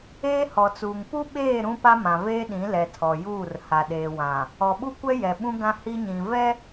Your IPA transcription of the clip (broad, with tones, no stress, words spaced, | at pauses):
eː˦hɔ˨t͡suː˨ŋ pu˦ɓeː˦˨ ɾũ˦pa˦mã˨ veː˦ɗĩ˨˦lɛ˨ tʰɔ˨juː˦˨r ha˨ɗeː˨wã˨ | ɔ˨ɓu˦kʷɛ˦jɛ˨ ɓũ˦ɡã˦ hi˦ɲĩ˨ vɛ˦